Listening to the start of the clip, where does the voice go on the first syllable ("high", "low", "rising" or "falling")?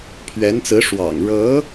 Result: rising